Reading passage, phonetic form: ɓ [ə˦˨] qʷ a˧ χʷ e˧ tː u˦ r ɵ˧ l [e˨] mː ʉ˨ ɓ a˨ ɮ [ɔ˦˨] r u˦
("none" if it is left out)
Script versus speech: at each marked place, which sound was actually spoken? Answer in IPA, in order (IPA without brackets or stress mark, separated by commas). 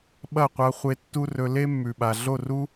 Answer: ɐ˦˨, e˦, o˦˨